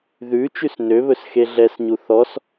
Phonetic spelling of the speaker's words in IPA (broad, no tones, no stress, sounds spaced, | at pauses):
ð ʉ t͡ʃ ʉ s n ø β ɵ s x e ɮ ɛ s ɲ u θ ɔ s